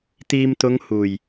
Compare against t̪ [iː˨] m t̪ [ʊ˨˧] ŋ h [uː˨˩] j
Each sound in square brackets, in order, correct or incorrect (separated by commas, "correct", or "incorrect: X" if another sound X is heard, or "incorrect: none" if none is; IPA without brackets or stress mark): correct, correct, correct